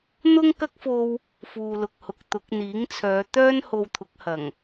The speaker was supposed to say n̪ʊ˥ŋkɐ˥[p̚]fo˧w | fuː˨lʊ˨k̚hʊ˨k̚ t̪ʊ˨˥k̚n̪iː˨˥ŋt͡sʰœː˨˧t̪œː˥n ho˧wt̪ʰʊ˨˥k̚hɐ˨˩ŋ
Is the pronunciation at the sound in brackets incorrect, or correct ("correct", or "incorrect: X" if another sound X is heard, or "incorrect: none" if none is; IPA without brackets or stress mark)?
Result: incorrect: k̚